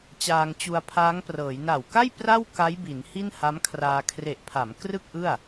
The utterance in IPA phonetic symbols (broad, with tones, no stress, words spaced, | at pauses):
t͡ɕaː˧ŋt͡ɕu˧a̯pʰaː˦˥ŋprɤː˩˦j na˨˩wka˥˩j pra˥˩w ka˦˥jbi˩˦n hi˥˩nha˦˥mkʰraː˧ kʰre˨˩ʔpʰa˩˦m krɯ˥˩k̚ʔɯ˥˩a̯